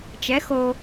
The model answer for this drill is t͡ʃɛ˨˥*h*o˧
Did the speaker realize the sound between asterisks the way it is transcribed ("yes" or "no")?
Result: no